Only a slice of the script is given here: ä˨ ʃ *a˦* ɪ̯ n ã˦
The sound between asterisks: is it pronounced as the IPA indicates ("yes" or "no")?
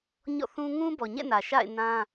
no